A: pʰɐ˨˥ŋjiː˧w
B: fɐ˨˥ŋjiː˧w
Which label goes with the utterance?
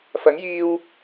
B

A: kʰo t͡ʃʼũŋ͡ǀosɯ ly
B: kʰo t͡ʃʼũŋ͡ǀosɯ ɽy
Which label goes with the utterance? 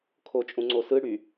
B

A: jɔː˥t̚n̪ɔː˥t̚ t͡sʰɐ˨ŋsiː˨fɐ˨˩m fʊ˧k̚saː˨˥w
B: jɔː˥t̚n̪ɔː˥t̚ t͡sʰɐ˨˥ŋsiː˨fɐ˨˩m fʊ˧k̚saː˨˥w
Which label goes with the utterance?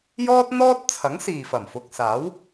B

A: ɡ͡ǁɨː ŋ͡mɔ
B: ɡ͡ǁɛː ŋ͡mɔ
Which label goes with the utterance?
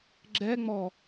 B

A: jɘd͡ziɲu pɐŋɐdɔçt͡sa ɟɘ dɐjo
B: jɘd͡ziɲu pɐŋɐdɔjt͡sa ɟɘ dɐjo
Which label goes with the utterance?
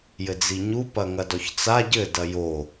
A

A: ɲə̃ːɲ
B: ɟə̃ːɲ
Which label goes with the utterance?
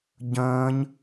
B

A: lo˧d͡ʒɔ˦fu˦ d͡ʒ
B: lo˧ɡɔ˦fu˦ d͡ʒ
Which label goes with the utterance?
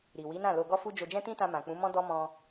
B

